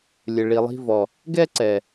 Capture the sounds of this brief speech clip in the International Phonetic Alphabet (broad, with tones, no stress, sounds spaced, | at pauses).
lʲ ɘ˨ ɭ i˨ lˠ i̤˧ v ɔ˨ | ɡ ɛ˦ ǀ ɛ˨